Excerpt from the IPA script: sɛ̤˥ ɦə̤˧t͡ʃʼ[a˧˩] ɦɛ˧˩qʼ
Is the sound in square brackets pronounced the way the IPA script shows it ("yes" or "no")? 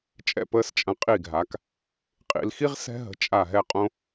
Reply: yes